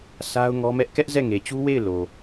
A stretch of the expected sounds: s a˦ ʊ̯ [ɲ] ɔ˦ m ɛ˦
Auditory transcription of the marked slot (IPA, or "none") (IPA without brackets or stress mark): ŋ